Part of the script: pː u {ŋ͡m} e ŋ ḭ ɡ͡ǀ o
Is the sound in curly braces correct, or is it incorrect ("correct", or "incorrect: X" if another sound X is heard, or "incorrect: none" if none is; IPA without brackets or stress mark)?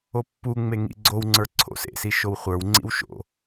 correct